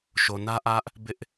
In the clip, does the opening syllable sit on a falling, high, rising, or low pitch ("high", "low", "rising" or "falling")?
low